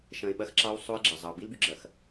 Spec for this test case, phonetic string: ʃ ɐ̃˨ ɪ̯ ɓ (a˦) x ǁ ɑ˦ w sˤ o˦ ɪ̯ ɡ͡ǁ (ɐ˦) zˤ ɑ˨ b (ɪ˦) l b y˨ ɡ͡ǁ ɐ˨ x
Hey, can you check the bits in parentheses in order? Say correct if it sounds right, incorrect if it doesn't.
incorrect: ɐ˦, incorrect: ɐ˨, incorrect: i˦

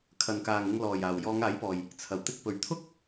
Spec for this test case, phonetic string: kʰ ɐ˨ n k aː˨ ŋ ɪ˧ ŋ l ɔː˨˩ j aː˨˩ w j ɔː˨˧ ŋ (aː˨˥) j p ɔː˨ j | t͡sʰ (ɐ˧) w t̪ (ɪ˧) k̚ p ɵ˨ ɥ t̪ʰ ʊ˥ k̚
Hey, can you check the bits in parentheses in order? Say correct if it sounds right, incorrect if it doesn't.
correct, incorrect: ɐ˨˩, correct

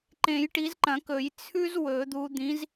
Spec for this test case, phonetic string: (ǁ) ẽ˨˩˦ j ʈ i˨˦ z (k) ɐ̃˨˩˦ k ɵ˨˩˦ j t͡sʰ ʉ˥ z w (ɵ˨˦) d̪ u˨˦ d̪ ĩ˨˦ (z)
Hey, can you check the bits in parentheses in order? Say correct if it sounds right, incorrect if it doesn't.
incorrect: ǃ, incorrect: ǃ, incorrect: ɵ˨˩˦, correct

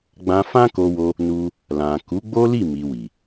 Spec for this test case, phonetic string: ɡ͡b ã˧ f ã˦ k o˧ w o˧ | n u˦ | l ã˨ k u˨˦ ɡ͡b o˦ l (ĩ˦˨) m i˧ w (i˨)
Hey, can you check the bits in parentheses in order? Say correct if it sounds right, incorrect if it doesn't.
incorrect: i˦˨, correct

